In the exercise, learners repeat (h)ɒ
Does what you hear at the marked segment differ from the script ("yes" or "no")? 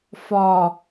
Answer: yes